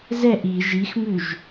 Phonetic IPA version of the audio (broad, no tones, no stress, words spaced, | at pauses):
zɛʔ i ʒixmʉʒ